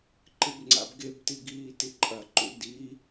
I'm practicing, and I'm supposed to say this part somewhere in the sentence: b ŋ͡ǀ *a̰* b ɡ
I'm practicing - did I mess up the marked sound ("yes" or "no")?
no